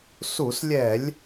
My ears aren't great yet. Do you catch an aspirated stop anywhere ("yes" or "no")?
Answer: no